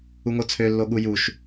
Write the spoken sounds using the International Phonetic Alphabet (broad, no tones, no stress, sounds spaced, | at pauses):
u ŋ o t͡sʰ ø lː o ɠ u j u ʃ